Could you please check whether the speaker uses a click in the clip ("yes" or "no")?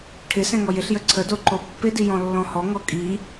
yes